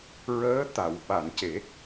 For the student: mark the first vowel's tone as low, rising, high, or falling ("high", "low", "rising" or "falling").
rising